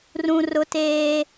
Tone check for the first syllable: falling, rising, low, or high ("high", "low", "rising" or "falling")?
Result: high